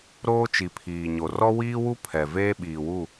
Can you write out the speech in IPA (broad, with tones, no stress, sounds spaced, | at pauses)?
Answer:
ɾ oː˦ t͡ʃ i˨ pʰ iː˨ ɲ o˨ r ɔ˦ w iː˦ w u˦ pʰ ɛ˨ v eː˦ ɓ iː˨ w u˦˨